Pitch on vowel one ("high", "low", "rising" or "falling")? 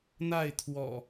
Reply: falling